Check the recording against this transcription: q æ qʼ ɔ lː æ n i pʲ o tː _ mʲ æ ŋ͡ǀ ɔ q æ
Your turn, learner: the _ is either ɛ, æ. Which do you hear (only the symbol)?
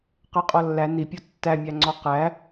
æ